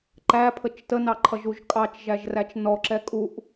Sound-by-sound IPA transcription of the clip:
ǃ æ pʰ ə t͡ʃ t ə n ɑ ǃʰ ʌ ʒ u ʒ kʼ ɑ t͡ʃ ʒ æ ʒ r æ t͡ʃ n ɔ ǁ ɛ kʼ u ʔ

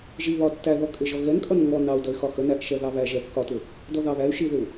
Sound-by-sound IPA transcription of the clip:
ʒ i β ɒ tː æ ð ɔ kʼ ɪ ʒ ɔ ɣ ɛ n kʼ ʌ n ŋ ɔ n ɑ u̯ d ʌ y̯ x ɒ x ə n æ ʔ ʃ ɛ ð ɑ β æ ʒ ɛ kː ɒ t ɪ | d ɔ ð ɑ β æ y̯ ʃ i ð ɪ u̯

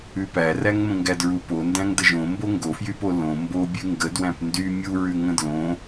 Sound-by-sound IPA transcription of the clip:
ʉ p æ r æ ŋ m ə̃ ŋ ɡ æ d ɹ u p o n d æ̃ ŋ d ə ʒ õ m b o ŋ ɡ o f j y p o l õ m b o bʲ ʉ ŋ ɡ ə d w æ̃ p n d y mʲ u ɹ ʉ ŋ ə̃ d l õ

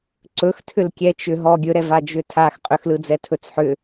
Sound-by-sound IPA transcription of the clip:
ǀ ɵ x tʰ ʏ l kʲ ɛ t͡ʃ ʏ ɦ ɔ ɡʲ ɵ ɾ ɛ v a d͡ʒ ʏ tʰ a x qʼ ʏ x l ɯ d͡z ɛ tʰ ɵ t͡s ħ ʏ

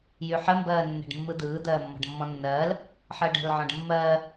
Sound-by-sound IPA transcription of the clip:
j y ħ ə m b ɜː nː ɛ̤ ɖ mː ɯ d̪ ɯː d̪ ɜː mː ɔ̤ ɖ mː ɔ̃ nː ɜː l | ħ ɜ ɖ ɛ̤ l ʕ ɔ̃ ɖ mː ɜː

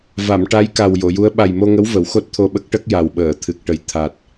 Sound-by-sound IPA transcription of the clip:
v a˨˩˨ m ʈ a˧˥ j k a˨˩ w j o˨˩˨ j u˧˥ ə̯ ɓ a˨˩ j m o˧ ŋ ə˧˥ w v ə˨˩˦ w x o˦˥ t̚ t̪ʰ o˧ ɓ ə˦˥ k̚ ʈ ə˦˥ k̚ j a˨˩ w ɓ əː˨˩˨ t̪ʰ ɨ˨˩ k̚ ʈ ə˨˩ j t̪ʰ a˨˩ t̚

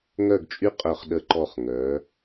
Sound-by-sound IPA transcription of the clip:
ŋ œ˥˧ ɡ t͡ʃʼ y˥ qʼ œ˧˩ χ ɗ ə˧˩ ǃ ɔ˧˩ χ ŋ œ˩˧

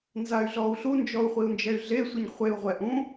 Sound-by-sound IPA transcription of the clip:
n z a y̯ ɮ ɔ u̯ ɬ u n d͡ʒ ɔ u̯ χʷ i u̯ n d͡ʒ ɛ y̯ ɮ e sʷ i ɲ χʷ e u̯ ʁʷ ɛ ʔ ũ

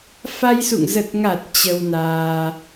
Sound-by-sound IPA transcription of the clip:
f a˧ j s ṵ˧˨ ŋ z ə˨˩ t̚ ŋ a˨˩ t̚ t͡ɕ ə˧ w n aː˧

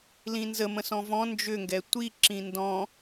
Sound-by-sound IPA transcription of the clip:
l ĩ n z ə m ə̃ s ɔ̃ v ɔ̃ n d͡ʒ ʏ ŋ ɡ ɛ tʷ i ǁ ĩ n d ɔ̃

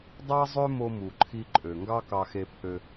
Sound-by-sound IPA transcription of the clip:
dˤ ɑ˥ zˤ ø˥ m o˧ m u˩ ǃʰ i˧ ǃʼ ø˩ ŋ ɡ ɑ˥ k ɑ˧ x e˧ pʰ ø˧

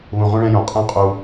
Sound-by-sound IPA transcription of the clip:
β ũ˨˩ ʁ ũ˧ ɭ ɛ̃˧ j õ˨˩ qʼ ɛ̃˧˥ qʼ u˧

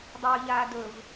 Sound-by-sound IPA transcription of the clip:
dˤ ɵː ʎ aː d ɵ v

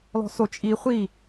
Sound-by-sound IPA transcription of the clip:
l ɔ̤ s o t͡ʃʼ i χʷ i

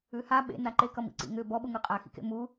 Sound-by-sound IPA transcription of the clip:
ʉ h a ɓ ḛ n a ǃ e k ʌ m ḭ ǀ ḭ ŋ ʏ b ɔ ɓ u ŋ ʉ qʼ a x ḭ k ḛ m u

